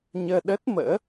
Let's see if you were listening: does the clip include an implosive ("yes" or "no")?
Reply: yes